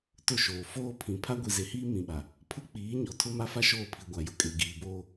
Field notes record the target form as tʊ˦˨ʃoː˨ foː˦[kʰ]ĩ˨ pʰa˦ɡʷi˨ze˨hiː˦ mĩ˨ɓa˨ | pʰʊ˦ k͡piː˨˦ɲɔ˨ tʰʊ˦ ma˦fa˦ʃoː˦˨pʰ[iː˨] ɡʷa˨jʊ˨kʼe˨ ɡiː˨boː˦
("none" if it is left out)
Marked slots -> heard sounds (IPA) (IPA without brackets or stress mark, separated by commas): pʰ, i˨